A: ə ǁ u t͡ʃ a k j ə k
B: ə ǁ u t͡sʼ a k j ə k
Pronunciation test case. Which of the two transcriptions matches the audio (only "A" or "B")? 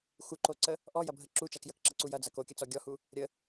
A